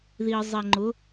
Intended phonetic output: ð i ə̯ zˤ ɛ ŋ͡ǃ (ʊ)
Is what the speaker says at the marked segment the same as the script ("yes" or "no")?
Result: yes